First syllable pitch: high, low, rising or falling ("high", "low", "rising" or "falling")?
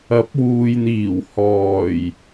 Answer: rising